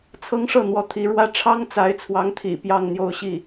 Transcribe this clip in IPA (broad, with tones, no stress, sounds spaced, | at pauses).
t͡sʰ ɤ˥ ŋ ʂ ɤ˥˩ n̪ w ɔ˧˥ t̪ʰ i˧˥ ɻ w ä˥ ʈ͡ʂʰ ɑ˥ ŋ t͡s a˧˥ ɪ̯ t͡sʰ w ɑ˧˥ ŋ t̪ʰ ḭ˨˩ p j ɑ˥˧ ŋ n̪ j o˥˧ ʊ̯ ɕ i˥˩